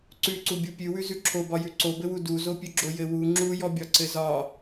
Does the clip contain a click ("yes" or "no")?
yes